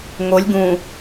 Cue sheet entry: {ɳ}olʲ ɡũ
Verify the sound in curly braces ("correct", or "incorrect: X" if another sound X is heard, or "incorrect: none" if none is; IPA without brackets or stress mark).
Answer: incorrect: ŋ